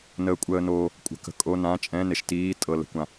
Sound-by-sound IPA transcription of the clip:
n əː˩ kʷʼ əː˩ n oː˩ | kʷʼ ə̤˩ k ə̤˩ kʼ o˩˧˩ n ã˩˧˩ t͡ʃʼ ɛ̃˩˧˩ n e˩ ʃ t iː˩˧˩ tʼ ɤ˩ l ə̤˩ kʷ ã˩

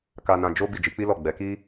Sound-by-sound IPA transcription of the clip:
k a˧ n ã˧ d͡ʒ o˦ b i˦˨ d͡ʒ i˨˦ k͡p i˦ l ɔ˦˨ ɡ͡b ɛ˨˦ k i˦

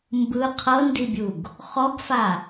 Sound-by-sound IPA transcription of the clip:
m b ɯ qʰ ɤ n d i bʲ u ɡ | χ ɔ ɡ f a

